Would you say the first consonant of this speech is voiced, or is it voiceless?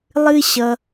voiced